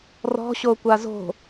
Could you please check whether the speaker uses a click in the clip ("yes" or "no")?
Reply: no